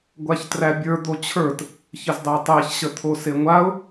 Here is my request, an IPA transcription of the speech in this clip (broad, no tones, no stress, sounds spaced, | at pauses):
ɡʷ a ç t r æ bʲ ə˞ d̪ o t͡ɕʰ ə˞ t | ç ə z dˤ æ tˤ æ ç ɕ ə t̪ʰ o s e ŋʷ a ʊ̯